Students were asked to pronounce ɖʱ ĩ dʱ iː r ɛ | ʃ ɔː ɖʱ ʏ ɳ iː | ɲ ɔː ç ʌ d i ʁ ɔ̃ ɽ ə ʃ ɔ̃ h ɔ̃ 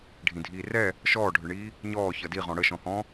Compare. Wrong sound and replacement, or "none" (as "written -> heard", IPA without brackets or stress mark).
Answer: none